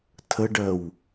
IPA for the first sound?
tʰ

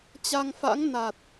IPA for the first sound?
t͡ɕ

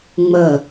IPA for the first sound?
ŋ͡m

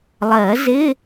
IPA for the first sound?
lˠ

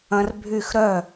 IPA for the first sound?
ɐ̃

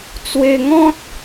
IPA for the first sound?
t͡s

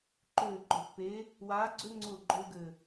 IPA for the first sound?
ǃ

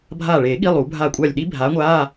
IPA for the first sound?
bʱ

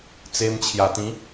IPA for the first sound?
t͡s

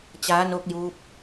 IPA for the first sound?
t͡ɕ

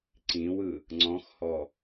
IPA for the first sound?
ǀ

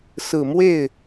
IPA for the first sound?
s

